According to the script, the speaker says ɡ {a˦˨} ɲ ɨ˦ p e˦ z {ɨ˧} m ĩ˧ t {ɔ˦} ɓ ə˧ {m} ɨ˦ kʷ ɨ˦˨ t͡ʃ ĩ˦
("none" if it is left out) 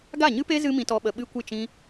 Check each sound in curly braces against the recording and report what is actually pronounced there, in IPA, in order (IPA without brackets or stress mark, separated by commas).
a˦˨, ɨ˦, ɔ˦, ɓ